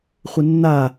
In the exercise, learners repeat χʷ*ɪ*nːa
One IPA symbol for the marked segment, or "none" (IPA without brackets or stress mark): ɪ